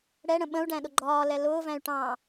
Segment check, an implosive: present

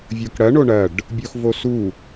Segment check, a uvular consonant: absent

